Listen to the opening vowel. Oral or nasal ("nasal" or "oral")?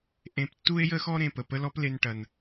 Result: nasal